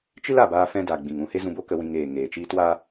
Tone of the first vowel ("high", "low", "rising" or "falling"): high